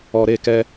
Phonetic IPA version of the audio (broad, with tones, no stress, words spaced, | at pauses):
ɔ˨ɾe˦˨kɛ˦